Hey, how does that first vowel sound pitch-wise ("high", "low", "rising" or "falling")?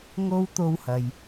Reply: high